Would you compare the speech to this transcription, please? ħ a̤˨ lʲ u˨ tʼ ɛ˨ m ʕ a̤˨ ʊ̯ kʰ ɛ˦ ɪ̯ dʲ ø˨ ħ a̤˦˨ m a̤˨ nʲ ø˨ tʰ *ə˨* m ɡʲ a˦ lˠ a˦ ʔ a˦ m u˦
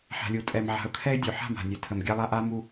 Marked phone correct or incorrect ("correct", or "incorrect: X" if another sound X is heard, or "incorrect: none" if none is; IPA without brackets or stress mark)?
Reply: correct